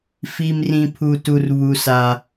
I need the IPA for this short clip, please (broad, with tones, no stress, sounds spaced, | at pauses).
f i˦ m r ĩ˦ pʰ u˦ t u˦ r β u˦ s a˦